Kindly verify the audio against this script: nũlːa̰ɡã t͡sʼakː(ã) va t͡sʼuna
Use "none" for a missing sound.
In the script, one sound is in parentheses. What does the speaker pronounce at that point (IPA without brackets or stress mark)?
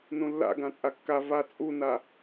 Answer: a